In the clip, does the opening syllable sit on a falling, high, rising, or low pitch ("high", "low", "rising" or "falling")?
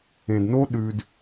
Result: low